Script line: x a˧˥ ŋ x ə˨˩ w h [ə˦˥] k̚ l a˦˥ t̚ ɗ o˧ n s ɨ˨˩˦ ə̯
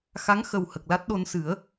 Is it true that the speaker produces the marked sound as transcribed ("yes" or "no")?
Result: no